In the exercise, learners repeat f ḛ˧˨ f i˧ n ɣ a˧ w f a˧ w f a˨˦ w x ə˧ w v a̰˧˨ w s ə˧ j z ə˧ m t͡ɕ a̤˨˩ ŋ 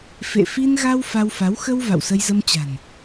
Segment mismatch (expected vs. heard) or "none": ŋ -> n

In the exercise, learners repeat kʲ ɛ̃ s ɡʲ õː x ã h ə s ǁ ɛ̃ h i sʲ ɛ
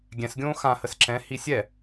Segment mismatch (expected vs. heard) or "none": kʲ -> ɡʲ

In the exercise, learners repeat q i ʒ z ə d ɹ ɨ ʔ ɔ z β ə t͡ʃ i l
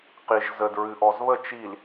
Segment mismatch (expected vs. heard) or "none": none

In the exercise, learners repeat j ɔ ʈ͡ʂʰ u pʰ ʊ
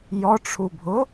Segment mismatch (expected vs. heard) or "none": pʰ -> bʱ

